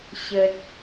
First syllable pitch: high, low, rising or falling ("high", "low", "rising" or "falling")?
low